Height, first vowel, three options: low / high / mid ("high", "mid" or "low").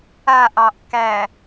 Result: low